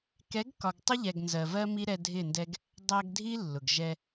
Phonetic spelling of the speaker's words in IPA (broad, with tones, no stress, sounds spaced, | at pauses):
k ɛ˨˦ ɡ k ɒ˨ ɡ tˤ ʊ˦ ʎ ɛ˨ ɡ n z ɜ˨ v ɜ˦ m i˦ ɾ ɛ˧ dʱ ɪ˦˨ n d ɛ˦ ɡ | dˤ æ˧ ɡ dʱ i˦ lː ʊ˨ ɡ ʒ ɛ˧